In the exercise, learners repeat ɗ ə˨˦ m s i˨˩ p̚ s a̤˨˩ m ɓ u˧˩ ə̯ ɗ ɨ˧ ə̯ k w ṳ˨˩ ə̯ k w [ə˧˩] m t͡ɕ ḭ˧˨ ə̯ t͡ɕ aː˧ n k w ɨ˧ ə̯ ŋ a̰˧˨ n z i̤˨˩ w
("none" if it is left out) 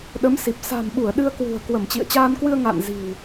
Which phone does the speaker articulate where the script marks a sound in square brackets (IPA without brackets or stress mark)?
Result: ə˧˩